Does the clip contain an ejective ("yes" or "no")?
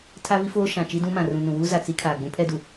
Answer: no